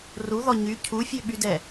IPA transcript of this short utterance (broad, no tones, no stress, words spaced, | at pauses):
ruðɔ ɲy cʰufʲøɓydɛ